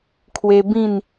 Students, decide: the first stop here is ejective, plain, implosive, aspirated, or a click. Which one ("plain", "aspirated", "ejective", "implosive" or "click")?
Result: aspirated